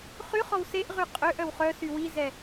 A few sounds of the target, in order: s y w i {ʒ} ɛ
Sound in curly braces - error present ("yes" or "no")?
yes